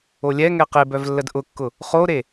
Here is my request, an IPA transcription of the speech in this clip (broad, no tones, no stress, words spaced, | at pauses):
olʲɛŋɛ qebœv lːədʔʊkːʊ | χoɾe